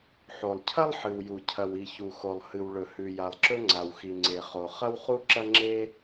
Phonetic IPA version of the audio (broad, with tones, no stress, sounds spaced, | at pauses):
ħ o˩ lˠ cʰ ɐ˥ lˠ ħ ɨ˩ w j u˩ cʰ ɐ˩ w i˩ ç u˩ x o˩ lˠ h ɨ˩ w ɭ ɵ˩ h ʉ˩ j a˩ lˠ ǁ ɵ˥ ŋ͡ǀ a˩ w x i˩ ŋ͡ǀ e˩ χ o˩ χ ɐ˥ w χ u˥ ǁ ɐ˥ ŋ͡ǁ e˥